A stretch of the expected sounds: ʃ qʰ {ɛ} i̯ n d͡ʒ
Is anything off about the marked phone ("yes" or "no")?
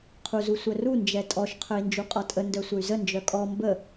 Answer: yes